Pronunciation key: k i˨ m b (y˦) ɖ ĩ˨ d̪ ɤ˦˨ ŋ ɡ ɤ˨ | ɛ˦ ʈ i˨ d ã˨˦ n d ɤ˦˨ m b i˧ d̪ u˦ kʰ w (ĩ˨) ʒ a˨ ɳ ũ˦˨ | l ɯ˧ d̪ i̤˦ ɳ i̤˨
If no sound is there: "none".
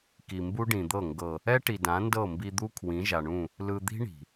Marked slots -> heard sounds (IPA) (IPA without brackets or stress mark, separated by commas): u˦, ĩ˨˦